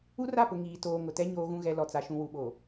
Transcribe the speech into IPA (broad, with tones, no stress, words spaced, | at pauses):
u˦ra˦˨pʊ˨ ŋiː˨ toː˨ ŋʊ˨tɛ˦ ɲoː˨ɣũ˨ɣɛ˨ lɔ˨t͡sa˨ ʃũ˨wu˨ɓo˨